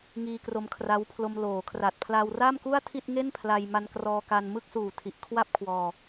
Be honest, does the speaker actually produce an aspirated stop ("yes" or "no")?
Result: yes